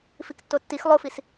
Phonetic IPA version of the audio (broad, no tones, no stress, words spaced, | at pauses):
fiktːotːix lˠofis